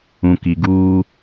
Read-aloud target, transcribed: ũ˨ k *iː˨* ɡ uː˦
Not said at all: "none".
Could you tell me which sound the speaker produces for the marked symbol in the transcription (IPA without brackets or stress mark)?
i˨